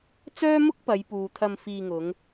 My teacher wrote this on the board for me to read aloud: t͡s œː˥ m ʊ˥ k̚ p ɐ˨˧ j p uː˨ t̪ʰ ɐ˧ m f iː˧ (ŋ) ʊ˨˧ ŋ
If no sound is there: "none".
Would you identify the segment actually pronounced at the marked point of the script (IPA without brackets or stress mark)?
ŋ